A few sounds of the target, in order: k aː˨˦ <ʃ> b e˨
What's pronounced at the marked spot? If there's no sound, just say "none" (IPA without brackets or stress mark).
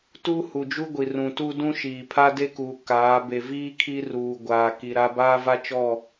none